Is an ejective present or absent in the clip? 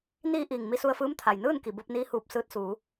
absent